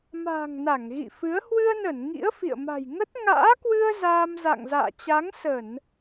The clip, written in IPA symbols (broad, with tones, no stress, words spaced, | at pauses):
ma̤ː˨˩ŋ na˧˩ŋɣḭ˧˨fɨ˨˦ə̯ hwɨ˧ə̯nə˧˩n ŋḭ˧˥ə̯fḭ˧˨ə̯ma̤˨˩j ŋə˦˥t̚ ŋa̰ː˧˥kwɨ˧ə̯ zaː˧m za̰˧˨ŋza̰ː˧˨t͡ɕa˨˦ŋsə˧˩˨n